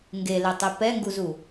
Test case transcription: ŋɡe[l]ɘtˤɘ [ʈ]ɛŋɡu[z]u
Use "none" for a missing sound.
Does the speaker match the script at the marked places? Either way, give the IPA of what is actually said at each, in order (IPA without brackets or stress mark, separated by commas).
l, p, z